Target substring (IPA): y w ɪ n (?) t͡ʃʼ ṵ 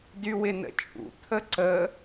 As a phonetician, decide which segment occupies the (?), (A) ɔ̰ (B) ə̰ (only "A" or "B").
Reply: B